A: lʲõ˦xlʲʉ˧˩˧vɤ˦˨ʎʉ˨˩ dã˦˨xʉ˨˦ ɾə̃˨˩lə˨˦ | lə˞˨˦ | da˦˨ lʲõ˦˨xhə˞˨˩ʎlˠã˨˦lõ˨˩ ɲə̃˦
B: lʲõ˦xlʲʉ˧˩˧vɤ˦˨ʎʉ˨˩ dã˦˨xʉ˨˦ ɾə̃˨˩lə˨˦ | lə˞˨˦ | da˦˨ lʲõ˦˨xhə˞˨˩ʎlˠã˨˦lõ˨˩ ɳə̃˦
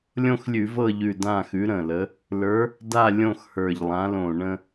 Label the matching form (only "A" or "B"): B